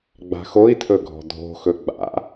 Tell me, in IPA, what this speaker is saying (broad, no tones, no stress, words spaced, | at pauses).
ɡ͡ba̤xoi̯tʰɵ ɡʱɔ̤dʱo̤xɵ ɡ͡ba̰